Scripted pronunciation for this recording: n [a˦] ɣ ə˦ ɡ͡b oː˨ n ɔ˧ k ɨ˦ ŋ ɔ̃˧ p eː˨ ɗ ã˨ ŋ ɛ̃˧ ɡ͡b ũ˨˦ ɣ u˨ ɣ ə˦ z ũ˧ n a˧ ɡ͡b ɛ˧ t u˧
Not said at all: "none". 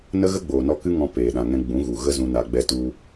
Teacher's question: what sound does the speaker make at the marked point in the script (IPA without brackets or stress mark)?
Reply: ə˦